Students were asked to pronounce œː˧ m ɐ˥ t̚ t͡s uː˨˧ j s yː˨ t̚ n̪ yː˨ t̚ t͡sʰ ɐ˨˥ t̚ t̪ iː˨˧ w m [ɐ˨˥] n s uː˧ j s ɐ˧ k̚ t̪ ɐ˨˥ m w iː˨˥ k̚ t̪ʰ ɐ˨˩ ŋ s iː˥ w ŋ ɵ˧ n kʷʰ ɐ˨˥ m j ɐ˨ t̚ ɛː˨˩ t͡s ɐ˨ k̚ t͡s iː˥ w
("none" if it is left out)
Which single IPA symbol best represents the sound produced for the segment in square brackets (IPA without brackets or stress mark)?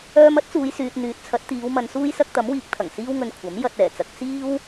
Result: ɐ˨